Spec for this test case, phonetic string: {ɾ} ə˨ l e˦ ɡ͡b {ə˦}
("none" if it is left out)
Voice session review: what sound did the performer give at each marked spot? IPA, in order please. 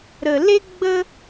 ɾ, ə˦

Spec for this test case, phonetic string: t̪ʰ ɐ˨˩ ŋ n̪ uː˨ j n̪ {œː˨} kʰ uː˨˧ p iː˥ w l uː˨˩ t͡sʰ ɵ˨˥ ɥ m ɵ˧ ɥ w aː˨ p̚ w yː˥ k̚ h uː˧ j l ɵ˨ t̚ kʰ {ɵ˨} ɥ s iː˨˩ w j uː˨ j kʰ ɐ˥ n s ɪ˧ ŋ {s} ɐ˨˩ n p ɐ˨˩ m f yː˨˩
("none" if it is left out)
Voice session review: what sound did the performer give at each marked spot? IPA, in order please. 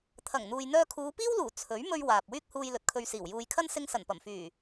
œː˧, ɵ˧, s

